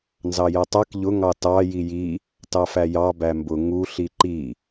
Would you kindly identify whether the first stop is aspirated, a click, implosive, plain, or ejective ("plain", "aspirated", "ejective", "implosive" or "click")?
plain